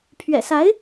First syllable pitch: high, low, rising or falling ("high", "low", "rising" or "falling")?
low